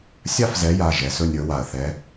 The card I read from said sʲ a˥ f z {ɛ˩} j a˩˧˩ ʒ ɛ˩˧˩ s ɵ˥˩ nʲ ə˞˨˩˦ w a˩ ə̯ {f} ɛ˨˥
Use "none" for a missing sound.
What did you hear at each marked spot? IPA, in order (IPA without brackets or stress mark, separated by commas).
ɛ˨˥, θ